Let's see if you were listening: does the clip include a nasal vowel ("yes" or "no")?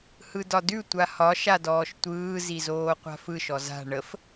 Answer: no